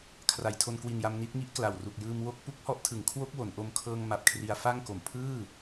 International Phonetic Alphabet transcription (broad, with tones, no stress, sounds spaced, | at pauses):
kʰ r a˩˦ j tʰ o˧ n k w i˨˩ n j a˧ m n i˦˥ t̚ ŋ i˦˥ ʔ k l a˨˩ w r u˨˩ k̚ j ɯː˧ m w o˦˥ k̚ p u˦˥ k̚ h ɔ˦˥ ʔ tʰ ɯ˩˦ ŋ kʰ w o˦˥ k̚ w o˩˦ n ʔ o˧ m kʰ ɤː˧ ŋ m a˨˩ p̚ kʰ r i˧ a̯ f a˥˩ ŋ k o˨˩ m pʰ ɯː˥˩